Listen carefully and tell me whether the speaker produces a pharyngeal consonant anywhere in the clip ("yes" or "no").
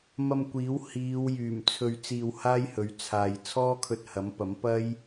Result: no